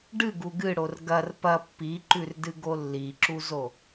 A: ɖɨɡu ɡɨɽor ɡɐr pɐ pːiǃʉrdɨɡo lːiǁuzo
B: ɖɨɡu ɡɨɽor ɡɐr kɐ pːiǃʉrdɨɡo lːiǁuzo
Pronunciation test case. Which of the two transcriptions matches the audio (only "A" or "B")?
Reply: A